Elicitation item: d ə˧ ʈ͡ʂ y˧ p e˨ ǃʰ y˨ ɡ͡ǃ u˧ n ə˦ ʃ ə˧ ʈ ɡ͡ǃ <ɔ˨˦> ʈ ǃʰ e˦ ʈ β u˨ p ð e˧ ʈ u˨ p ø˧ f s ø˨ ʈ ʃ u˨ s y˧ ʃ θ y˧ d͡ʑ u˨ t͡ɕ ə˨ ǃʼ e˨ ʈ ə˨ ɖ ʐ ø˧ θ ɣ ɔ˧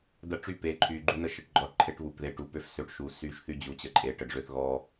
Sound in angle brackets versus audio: correct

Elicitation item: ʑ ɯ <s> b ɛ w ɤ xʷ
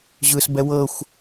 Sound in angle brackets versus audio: correct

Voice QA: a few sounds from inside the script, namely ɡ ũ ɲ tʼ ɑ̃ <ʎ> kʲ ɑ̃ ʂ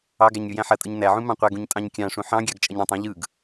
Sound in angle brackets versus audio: incorrect: ɲ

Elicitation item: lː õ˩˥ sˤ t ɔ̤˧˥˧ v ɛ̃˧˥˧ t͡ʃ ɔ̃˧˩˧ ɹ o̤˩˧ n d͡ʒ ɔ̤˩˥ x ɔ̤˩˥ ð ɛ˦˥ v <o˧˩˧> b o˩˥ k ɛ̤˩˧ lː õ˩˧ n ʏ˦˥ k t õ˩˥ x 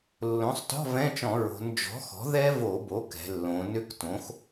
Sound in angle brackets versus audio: correct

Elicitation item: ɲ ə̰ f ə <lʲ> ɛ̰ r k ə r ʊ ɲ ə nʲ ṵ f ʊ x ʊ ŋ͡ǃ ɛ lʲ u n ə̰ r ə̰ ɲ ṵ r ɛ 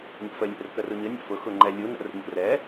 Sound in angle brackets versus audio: correct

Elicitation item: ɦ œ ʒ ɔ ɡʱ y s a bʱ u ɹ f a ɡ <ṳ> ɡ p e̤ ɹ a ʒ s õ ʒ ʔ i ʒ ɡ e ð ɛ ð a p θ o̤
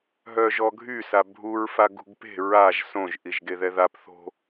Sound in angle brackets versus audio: correct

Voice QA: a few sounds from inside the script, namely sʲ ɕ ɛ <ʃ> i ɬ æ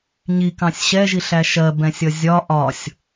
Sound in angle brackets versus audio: incorrect: ʒ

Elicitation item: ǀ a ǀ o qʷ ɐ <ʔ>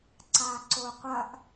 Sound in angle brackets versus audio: correct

